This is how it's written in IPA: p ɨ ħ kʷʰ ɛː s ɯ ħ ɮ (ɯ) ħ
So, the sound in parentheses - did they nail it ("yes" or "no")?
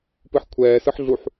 no